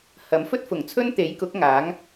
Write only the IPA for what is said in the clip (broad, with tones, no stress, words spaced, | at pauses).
hɐ˨˥m fɵ˥t̚fʊ˨˩ŋt͡sʰɵ˥n t̪e˨˥jkʊ˨˥k̚ ŋaː˨˥ŋ